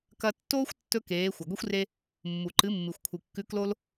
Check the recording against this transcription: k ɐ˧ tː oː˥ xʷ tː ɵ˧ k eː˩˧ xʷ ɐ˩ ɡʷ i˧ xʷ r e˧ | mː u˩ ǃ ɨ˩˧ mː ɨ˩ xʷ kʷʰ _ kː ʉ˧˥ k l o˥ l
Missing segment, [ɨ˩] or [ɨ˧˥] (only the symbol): ɨ˩